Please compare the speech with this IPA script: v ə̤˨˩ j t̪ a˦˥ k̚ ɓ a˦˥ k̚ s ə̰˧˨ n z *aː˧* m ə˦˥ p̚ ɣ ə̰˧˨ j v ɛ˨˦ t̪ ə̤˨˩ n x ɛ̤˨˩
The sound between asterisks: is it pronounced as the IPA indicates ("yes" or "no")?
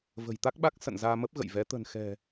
yes